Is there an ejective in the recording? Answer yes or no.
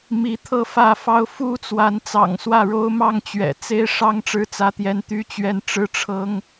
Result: no